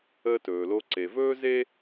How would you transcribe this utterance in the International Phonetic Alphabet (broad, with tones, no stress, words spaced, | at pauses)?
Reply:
əː˧ tɵː˩lo˧ ǀe˩vɵː˥ ze˥